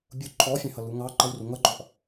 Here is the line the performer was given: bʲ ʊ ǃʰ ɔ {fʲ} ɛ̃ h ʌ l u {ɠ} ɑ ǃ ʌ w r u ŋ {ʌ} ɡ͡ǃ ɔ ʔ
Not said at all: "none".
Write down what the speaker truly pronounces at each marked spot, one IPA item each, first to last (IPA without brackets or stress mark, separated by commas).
fʲ, ŋ, ʌ